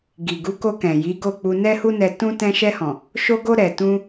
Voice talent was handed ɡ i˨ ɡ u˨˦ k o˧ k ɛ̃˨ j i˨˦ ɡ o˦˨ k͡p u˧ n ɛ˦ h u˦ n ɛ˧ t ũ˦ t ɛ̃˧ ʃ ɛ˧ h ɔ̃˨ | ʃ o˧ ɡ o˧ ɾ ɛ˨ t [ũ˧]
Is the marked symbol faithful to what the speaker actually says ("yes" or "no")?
yes